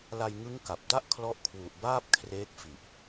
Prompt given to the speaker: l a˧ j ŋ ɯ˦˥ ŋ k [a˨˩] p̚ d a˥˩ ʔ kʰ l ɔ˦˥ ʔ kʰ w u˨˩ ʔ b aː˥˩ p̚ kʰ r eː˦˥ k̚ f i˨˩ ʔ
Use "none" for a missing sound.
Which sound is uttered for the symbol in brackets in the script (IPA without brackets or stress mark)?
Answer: a˨˩